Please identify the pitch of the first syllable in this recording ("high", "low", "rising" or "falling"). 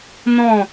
falling